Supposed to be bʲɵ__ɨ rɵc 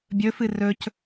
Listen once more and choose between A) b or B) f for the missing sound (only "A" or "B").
B